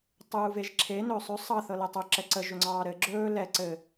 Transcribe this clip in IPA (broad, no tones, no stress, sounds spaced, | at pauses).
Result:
tˤ uː v e ʒ ǁʰ e n ɵː sˤ ɵ sˤ ɑ θ ɤ l ɛ tˤ o ǁ ɛ ǀ ə ʒ ɵ ŋ͡ǀ ɑː ɾ ɘ ɡ͡ǁ ɵː l ɛ ǀ ɘ